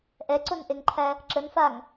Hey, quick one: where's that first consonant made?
throat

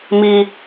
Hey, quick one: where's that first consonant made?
lips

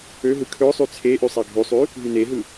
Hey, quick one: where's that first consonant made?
throat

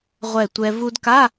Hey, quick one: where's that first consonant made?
uvula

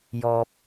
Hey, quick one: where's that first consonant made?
palate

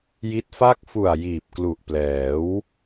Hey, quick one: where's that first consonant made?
palate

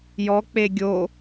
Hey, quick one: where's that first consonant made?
palate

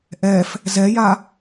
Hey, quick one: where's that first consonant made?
throat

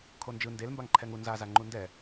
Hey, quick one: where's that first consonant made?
velum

